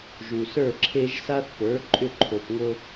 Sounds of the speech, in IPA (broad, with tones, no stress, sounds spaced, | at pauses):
ʒ u˨ s ə˞˥˩ ǁʰ e˦ ʒ s a˦ θ p ə˞˩˥ ǃʼ ʏ˥˩ ǃʰ o˨ p ŋ o˦